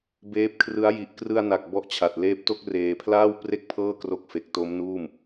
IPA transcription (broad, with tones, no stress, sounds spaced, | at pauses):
b eː˦˥ p̚ kʰ r ɯ˦˥ a̯ j i˨˩ ʔ k r ɯ˧ a̯ n a˨˩ k̚ b ɔ˦˥ ʔ t͡ɕʰ a˨˩ t̚ l eː˦˥ p̚ t o˥˩ k̚ r eː˧ pʰ l aː˥˩ w p r e˥˩ k̚ pʰ ɤː˥˩ k r o˦˥ k̚ f e˨˩ k̚ t o˦˥ m n uː˥˩ m